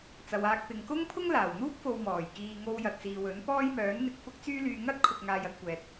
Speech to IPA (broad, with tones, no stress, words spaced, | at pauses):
t͡sɐ˨waː˧k̚pɪ˨ŋ kʊ˥ŋpʰʊ˥ŋ laː˨˩w n̪uː˥k̚fo˨w mɔː˨˩j kiː˧ ŋo˧wjɐ˨t̚ siː˨wɵ˨˥n pɔː˥jmœː˨˥nn̪ɪ˨k̚ fʊ˥k̚t͡syː˥lyː˧ ŋɐ˥t̚kʰʊ˨k̚ ŋaː˧jɐ˧t̚kʷɛː˨t̚